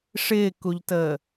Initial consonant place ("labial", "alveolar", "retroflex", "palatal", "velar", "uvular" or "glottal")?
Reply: retroflex